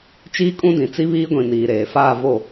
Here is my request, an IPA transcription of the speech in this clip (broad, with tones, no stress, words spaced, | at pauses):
t͡ʃiː˦kʼũ˦dĩ˨ t͡si˦βiː˦ɡʷĩ˨ niː˨ɾeː˨faː˦˨vo˦˨